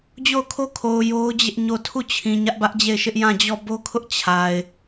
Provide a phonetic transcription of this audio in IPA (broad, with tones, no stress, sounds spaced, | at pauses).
d͡ʑ o˦˨ ʊ̯ kʰ o˦ kʰ o˨ ʊ̯ j o˦ ʊ̯ d͡ʑ ɪ˦ ʔ ɲ o˦˨ tʰ u˦˨ t͡ɕʰ ĩ˨ ɲ ä˦ ʔ b ä˦ ʔ d͡ʑ e˦˨ ɪ̯ ʃ ɪ˦ ʔ j ã˦˨ d͡ʑ ɔ˦˨ b o˦ kʰ ʊ˦ ʔ t͡ɕʰ a˨ ɪ̯